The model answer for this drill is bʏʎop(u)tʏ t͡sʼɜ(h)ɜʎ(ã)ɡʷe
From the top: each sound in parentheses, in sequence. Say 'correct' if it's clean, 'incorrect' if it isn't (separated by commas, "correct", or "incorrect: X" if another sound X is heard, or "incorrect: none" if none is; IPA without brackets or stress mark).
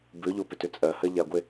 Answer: incorrect: ʏ, correct, incorrect: a